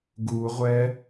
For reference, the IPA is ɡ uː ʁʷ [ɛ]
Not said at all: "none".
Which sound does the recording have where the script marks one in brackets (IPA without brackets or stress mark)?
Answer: ɛ